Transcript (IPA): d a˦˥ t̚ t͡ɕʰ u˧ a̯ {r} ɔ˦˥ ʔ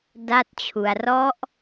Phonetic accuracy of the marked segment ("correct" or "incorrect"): correct